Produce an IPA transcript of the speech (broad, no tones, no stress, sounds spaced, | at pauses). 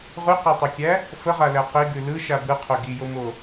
ʁ ʉ q æ tˤ ʉ kʲ æ | f ə ʁ a l æ q i ɡ ʉ l ɯ ʃ a b ɯ qʰ o ɡ i j o m o